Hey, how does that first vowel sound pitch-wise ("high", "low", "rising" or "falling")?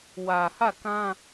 low